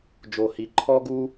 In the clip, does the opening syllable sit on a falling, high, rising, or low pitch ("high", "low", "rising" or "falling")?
low